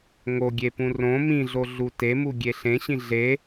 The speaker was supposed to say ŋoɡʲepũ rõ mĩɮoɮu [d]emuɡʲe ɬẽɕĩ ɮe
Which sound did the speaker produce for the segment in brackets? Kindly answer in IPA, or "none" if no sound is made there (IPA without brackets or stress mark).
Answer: t